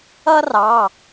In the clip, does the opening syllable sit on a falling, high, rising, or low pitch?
high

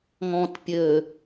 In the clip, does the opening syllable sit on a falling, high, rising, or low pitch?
low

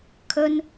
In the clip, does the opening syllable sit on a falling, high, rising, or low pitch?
high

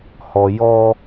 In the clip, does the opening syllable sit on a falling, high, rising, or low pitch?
low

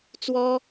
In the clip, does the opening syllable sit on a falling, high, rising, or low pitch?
high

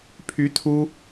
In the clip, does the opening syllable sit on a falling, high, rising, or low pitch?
rising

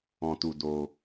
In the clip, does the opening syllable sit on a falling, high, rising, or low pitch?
low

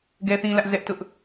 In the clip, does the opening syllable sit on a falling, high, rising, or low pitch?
high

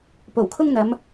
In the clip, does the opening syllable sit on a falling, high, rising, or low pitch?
low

